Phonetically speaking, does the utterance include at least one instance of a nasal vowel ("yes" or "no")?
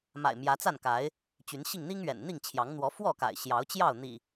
no